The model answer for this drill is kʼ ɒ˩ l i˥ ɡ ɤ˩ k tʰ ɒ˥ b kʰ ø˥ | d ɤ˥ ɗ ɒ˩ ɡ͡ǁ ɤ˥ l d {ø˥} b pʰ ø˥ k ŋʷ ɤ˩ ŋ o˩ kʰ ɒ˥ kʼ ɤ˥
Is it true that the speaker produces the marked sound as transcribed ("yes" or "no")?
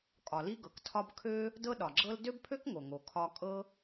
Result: yes